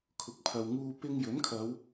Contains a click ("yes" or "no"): no